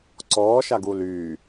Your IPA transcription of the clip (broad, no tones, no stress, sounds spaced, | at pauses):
ǀ ɔː ʃ a ɡ u l yː